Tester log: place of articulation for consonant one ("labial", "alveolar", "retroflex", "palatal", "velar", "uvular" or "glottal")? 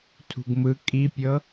alveolar